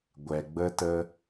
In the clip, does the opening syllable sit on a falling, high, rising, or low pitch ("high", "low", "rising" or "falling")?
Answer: low